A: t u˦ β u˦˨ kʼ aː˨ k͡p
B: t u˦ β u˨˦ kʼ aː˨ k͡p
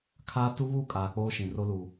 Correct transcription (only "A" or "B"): A